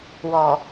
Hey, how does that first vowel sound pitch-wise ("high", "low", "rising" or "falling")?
low